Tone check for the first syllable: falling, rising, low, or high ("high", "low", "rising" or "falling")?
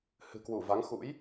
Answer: low